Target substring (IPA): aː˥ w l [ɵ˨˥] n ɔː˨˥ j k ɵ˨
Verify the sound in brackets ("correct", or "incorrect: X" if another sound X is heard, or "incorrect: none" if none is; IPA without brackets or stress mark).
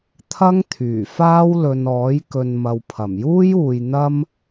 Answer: incorrect: ɵ˨